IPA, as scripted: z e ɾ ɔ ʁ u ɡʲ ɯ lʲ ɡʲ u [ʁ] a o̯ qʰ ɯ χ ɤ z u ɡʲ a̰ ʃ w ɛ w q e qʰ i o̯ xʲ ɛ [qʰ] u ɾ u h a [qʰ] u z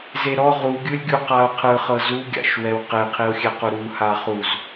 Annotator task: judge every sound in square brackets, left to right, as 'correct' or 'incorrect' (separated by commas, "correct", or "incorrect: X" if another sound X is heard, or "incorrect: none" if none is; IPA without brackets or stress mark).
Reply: incorrect: q, incorrect: q, incorrect: χ